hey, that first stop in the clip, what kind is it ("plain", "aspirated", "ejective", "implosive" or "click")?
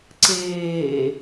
click